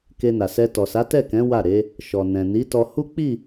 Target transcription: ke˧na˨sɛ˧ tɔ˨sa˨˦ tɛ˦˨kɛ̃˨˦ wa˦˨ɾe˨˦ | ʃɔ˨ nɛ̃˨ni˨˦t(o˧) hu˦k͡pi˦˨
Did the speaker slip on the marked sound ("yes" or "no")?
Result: yes